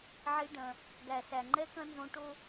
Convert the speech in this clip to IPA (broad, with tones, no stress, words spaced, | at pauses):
ʕi˦ɖɐ̃˦ | ɡæ˨sæ˨ ŋ͡ǃɛ˦kɐ̃˦nzõ˦ ʈo˦